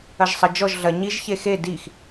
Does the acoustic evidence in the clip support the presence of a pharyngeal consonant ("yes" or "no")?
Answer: no